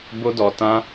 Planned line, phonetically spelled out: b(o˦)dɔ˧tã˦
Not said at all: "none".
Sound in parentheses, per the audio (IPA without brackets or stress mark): o˦